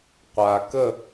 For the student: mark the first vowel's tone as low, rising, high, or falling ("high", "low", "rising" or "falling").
low